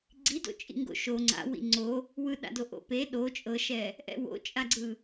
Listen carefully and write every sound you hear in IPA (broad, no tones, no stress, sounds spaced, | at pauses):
ɡ͡ǀ i d o̰ t͡ʃʼ ḭ ŋ ɡ o̰ ʃ o ŋ͡ǀ a̰ w ḭ ŋ͡ǀ o | w ɯ ɗ a̰ d o ʔ o̰ p e ɗ o t͡ʃʼ ɤ ʃ ɛ | ʔ ɛ̰ w o̰ t͡ʃʼ a ɡ͡ǀ ɯ